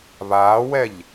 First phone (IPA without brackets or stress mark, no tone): β